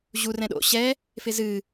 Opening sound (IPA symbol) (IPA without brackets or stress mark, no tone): ʑ